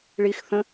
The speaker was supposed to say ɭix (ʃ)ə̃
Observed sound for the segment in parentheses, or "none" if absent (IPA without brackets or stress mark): θ